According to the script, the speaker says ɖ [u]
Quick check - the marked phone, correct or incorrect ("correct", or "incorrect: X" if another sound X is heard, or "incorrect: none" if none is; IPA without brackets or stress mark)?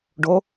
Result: incorrect: o